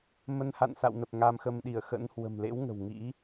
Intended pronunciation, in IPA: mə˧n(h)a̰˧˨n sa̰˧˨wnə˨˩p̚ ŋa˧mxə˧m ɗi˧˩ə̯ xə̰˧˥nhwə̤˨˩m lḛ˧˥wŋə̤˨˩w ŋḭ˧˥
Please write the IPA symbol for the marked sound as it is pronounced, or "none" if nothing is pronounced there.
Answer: h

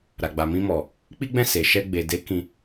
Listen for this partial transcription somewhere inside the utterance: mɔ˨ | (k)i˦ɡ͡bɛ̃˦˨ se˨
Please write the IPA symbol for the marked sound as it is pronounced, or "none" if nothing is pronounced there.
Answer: k͡p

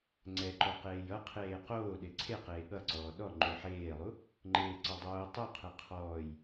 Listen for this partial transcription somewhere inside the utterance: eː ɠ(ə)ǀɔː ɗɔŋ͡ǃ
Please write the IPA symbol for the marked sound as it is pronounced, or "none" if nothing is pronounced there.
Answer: ʌ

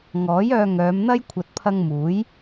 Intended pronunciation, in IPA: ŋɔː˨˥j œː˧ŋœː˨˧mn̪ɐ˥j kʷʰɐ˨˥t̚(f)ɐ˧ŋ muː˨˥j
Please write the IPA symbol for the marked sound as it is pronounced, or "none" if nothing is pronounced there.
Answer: pʰ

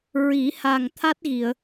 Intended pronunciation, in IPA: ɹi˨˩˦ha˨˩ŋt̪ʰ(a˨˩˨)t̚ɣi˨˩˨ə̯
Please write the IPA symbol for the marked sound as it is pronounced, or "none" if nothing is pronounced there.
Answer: a˦˥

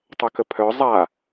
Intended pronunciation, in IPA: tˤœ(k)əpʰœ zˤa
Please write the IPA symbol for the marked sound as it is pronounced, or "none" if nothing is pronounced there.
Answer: k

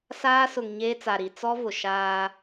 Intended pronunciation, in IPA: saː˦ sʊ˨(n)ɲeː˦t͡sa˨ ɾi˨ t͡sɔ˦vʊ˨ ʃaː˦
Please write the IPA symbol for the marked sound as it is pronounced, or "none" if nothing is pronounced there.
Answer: ŋ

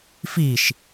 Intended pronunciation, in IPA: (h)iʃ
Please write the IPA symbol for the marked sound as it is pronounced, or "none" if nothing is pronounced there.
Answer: f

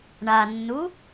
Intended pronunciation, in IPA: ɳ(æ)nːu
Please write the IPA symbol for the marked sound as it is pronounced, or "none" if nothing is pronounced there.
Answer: a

